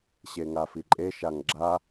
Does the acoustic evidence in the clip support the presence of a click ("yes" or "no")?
yes